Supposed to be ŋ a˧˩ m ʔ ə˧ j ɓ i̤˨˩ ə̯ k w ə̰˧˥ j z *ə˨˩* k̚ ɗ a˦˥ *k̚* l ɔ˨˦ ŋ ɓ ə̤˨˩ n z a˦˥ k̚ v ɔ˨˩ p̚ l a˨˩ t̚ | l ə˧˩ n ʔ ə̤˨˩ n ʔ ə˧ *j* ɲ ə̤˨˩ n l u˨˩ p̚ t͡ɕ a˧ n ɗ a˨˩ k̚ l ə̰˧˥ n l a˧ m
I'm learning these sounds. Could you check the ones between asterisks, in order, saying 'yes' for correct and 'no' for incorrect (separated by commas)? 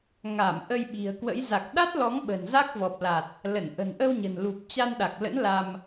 no, no, no